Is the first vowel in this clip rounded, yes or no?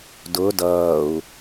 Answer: yes